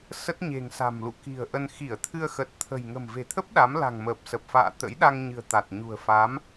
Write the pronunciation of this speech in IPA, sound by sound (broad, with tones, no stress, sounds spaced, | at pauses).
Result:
s ə˦˥ t̚ ɲ e̤˨˩ ŋ s a̤˨˩ m l ṵ˧˨ k i̤˨˩ ə̯ ʔ ə˧ n x i˧˩ ə̯ t̪ʰ ɨ˧ ə̯ x ə˨˩ t̚ t̪ʰ ə̤˨˩ j ŋ ə̤˨˩ m v e̤˨˩ t̪ʰ ə˦˥ p̚ ɗ a˨˦ m l a̤˨˩ ŋ m əː˨˩ p̚ s ə˨˩ p̚ f a̰ː˧˨ t̪ ə̰˧˥ j ɗ a˧ ŋ ɲ ɨ̤˨˩ ə̯ t̪ a˨˩ t̚ ɲ ṳ˨˩ ə̯ f a˨˦ m